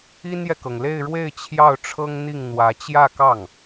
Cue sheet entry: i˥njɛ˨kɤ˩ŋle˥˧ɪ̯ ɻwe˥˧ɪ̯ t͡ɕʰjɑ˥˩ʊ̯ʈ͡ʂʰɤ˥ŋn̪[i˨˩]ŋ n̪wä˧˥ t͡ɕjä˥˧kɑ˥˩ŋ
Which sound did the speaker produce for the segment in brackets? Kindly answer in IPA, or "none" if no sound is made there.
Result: i˥˩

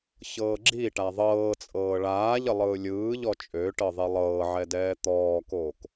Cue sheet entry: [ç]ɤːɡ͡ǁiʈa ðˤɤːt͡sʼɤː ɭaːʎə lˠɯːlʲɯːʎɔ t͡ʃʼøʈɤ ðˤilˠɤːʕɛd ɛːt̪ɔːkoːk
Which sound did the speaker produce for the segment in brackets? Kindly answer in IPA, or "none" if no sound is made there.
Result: ç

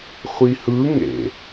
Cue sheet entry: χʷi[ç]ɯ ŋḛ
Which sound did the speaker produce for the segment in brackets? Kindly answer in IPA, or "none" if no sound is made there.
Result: h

